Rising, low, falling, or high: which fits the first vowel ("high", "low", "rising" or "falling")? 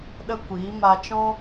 high